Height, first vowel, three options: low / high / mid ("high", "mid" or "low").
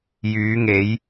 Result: high